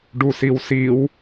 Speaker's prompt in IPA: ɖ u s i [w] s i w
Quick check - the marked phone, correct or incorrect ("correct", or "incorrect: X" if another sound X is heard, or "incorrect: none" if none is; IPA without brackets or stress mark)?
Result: correct